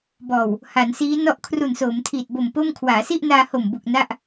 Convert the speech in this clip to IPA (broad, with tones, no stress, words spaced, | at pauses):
bɔː˨˩w | ha˩˦nsiː˦˥ nɔ˦˥ʔkʰru˨˩nsoː˩˦mtʰiː˨˩t̚ bo˨˩m po˥˩m kʰwaː˩˦si˥˩ʔ naː˧ho˨˩mbu˨˩k̚ na˥˩ʔ